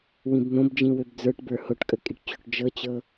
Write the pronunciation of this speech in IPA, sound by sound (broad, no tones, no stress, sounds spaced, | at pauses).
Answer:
w ĩ b n̪ õ b d͡ʒ ĩ w ø b d͡z ə˞ ʈ b ə˞ h o ʈ kʼ ə kʼ i ʈ t͡ɕ o ʈ d͡ʒ ɤ t͡ɕ ɤ